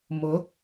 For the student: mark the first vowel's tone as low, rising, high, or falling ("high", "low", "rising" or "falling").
rising